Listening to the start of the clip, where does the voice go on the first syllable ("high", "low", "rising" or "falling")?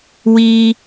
high